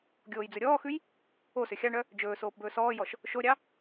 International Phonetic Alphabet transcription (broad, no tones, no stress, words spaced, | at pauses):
ɡʲoːjd͡zɵɾʲɔːxʉj | osø xʲɑɳœ | d͡ʒɵː soːpbɵːsɔːjɔʃ | ʃoɾʲɑ